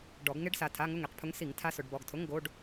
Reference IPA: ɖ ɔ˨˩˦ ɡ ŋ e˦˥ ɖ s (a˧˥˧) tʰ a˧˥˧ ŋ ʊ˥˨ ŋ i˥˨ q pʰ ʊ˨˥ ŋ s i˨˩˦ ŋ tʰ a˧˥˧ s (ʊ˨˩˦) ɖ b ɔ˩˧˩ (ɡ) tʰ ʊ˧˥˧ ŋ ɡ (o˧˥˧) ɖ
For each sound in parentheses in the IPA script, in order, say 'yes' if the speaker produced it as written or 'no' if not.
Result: no, yes, yes, yes

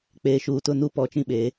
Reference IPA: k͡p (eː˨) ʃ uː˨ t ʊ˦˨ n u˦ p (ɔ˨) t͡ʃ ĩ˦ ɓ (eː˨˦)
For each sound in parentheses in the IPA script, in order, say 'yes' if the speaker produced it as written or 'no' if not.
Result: yes, yes, yes

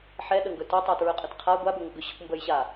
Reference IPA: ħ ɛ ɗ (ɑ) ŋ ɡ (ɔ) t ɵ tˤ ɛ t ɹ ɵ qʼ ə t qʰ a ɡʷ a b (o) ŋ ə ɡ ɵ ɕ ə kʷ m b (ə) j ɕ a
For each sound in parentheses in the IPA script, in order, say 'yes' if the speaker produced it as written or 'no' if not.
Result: no, no, no, yes

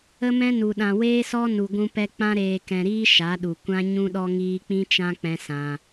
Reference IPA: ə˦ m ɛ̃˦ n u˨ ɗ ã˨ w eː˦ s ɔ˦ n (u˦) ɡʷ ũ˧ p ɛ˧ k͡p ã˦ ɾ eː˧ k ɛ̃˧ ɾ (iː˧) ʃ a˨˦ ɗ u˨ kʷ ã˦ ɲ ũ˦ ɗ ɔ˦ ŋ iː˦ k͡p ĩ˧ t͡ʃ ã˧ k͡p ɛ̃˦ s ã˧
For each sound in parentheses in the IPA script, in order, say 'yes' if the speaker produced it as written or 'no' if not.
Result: no, no

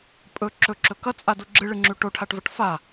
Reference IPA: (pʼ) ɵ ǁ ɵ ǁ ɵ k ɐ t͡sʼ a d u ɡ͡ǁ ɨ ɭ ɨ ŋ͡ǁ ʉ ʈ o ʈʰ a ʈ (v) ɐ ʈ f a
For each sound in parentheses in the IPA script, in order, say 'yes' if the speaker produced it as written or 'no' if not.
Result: yes, yes

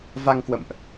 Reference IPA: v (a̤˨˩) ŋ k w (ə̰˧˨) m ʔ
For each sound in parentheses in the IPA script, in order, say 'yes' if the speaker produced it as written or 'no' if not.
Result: no, yes

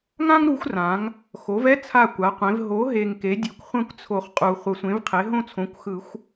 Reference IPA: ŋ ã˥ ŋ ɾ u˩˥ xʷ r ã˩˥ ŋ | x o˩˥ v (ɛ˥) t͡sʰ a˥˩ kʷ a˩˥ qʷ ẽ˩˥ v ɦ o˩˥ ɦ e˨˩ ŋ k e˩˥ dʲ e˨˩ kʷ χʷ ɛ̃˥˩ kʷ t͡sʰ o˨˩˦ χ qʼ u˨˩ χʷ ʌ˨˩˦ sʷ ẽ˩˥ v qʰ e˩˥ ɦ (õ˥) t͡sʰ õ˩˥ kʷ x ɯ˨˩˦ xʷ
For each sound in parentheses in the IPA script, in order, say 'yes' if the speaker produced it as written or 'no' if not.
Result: yes, no

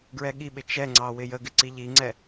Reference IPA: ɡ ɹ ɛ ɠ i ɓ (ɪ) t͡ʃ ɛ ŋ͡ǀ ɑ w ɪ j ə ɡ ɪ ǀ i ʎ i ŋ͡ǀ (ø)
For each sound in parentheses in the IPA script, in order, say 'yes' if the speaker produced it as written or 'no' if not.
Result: yes, no

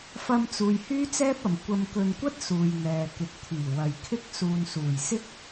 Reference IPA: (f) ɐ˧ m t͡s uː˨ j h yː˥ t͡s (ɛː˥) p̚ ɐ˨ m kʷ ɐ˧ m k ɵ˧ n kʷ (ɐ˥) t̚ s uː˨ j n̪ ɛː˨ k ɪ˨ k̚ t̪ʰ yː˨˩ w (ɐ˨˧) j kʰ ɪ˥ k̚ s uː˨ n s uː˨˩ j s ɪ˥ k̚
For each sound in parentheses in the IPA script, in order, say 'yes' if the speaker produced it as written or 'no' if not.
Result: yes, yes, yes, no

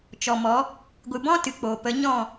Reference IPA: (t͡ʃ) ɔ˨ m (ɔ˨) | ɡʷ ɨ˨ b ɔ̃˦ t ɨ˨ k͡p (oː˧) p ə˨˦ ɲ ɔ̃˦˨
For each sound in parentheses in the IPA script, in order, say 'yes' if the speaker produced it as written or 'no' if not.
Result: yes, no, no

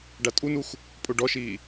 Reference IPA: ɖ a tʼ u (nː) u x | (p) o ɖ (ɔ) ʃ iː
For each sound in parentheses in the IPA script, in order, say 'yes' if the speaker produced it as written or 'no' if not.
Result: no, no, yes

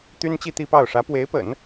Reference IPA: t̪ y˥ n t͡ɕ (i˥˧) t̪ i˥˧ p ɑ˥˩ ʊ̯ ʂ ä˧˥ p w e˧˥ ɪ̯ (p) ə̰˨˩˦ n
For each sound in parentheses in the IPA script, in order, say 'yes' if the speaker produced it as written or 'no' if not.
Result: yes, yes

